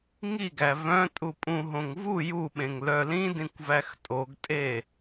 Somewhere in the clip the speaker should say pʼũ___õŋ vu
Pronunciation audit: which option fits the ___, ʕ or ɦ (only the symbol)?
ɦ